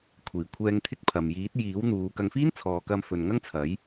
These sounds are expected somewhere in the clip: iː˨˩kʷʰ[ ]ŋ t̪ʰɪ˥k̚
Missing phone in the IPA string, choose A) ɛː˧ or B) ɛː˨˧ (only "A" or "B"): A